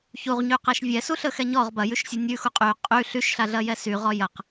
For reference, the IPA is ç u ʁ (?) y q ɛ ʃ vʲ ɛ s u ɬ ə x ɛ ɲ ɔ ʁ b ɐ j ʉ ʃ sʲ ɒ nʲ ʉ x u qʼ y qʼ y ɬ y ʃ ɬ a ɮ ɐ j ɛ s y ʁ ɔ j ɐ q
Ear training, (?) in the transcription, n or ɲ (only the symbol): ɲ